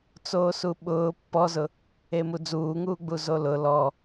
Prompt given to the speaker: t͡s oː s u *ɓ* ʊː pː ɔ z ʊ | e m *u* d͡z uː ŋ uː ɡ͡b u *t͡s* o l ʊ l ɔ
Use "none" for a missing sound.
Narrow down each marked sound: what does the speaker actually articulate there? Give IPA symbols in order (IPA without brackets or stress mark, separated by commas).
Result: ɓ, u, z